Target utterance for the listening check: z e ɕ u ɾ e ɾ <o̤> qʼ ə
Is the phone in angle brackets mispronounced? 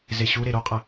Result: yes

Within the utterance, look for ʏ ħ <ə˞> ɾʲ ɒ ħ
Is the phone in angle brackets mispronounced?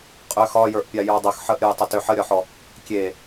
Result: yes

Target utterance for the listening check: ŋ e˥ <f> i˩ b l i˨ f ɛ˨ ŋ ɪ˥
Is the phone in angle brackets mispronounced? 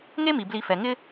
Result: yes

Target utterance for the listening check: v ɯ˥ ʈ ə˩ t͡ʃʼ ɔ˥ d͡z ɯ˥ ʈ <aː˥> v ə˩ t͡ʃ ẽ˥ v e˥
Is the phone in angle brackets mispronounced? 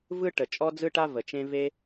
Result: yes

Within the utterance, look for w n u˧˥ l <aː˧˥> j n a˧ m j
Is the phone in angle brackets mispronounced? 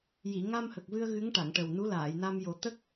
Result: yes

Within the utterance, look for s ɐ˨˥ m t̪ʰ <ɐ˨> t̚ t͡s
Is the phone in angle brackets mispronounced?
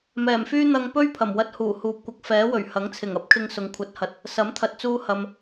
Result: no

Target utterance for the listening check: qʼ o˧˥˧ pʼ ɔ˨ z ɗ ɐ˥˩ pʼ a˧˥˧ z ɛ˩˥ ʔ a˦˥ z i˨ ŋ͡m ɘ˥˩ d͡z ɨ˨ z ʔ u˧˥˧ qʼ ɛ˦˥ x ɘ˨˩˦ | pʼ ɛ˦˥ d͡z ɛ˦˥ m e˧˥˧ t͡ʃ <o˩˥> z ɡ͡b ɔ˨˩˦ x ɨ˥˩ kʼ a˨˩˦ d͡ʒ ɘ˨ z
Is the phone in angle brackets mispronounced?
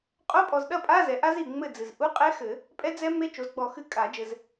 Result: no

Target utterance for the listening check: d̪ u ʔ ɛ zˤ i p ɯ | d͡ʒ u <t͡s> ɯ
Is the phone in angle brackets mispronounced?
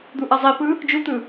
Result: yes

